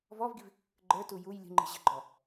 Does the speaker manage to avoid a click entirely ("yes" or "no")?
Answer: no